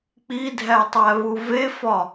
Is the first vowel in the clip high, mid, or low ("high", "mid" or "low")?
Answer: high